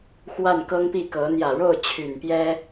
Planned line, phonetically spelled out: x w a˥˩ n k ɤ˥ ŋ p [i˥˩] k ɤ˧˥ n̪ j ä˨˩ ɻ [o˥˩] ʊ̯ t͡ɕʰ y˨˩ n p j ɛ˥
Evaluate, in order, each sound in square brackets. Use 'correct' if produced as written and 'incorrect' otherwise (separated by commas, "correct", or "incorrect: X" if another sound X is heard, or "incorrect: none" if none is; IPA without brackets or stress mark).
correct, correct